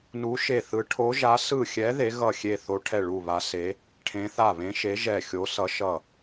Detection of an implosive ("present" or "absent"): absent